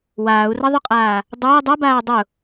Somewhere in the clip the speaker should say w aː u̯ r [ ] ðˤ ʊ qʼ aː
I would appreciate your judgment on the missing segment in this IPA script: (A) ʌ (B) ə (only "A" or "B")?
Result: A